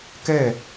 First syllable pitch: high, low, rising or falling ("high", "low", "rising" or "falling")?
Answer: falling